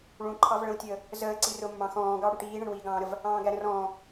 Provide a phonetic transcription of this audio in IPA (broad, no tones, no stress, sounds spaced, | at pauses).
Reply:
ɭ ũ ǃʰ ɑ v ɭ ə̃ w tʲ əː | z əː ǀ i r ʊ mː ɑ̃ x ɔ̃ː ɡ ɑ ɽ u ʈ iː ɳ ə̃ ɳ w iː ɡ ɑ̃ː ɾ ə v | ɑ̃ː ɡ æ ɾ ə̃ r ɔ̃ː